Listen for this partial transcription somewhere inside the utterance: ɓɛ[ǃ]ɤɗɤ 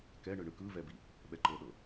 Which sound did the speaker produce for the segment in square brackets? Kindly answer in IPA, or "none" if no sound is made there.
ǃ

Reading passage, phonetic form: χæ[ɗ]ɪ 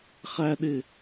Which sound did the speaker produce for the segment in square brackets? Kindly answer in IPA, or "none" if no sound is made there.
ɗ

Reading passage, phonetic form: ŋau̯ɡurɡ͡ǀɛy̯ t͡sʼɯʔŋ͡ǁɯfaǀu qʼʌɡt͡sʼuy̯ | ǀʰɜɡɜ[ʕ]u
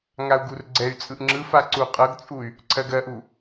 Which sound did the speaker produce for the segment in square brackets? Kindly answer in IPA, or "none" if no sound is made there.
ʔ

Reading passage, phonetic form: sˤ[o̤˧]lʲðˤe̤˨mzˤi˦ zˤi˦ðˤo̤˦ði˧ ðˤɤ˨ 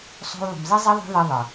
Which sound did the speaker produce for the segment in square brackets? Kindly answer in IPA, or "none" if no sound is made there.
o̤˧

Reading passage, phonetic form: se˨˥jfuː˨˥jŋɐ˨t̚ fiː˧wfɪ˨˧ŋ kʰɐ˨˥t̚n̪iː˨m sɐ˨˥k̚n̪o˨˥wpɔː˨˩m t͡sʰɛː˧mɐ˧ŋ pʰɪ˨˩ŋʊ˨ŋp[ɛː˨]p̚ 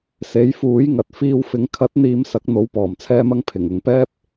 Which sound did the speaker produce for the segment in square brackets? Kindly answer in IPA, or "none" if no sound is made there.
ɛː˥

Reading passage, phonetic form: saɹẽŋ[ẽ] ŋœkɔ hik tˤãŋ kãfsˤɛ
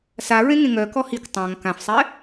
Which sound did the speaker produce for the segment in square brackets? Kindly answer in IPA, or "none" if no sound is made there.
ẽ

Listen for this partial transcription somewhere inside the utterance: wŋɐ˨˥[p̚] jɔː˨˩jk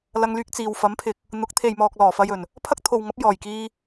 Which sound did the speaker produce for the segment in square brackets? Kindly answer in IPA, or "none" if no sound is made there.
p̚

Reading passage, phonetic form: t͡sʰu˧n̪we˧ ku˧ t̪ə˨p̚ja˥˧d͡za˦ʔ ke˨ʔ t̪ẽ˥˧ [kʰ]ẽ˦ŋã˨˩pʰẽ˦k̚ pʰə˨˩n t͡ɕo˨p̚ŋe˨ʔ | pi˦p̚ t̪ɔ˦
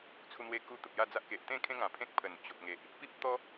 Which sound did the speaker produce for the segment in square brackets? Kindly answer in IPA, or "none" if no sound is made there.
kʰ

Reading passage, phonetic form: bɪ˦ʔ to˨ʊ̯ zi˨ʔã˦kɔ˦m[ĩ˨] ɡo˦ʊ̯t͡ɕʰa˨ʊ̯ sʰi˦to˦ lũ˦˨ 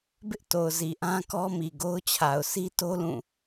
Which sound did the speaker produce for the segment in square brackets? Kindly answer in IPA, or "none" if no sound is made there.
i˨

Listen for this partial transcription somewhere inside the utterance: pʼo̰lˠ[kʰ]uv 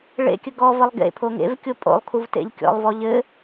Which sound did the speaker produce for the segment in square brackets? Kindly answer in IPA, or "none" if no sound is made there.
kʰ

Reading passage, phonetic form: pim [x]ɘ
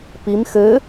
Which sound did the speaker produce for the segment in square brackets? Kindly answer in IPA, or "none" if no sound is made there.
x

